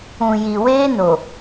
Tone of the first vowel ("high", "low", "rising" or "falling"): low